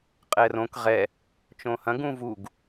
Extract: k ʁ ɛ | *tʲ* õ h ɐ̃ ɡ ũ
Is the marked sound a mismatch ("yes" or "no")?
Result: yes